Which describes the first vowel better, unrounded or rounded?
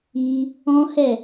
unrounded